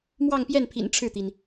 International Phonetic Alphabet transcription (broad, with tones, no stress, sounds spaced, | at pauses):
m w ɑ˥˧ ŋ p j ɛ˥˩ n pʰ ḭ˨˩ n ʈ͡ʂʰ ɻ̩˥˩ t̪ i˩ n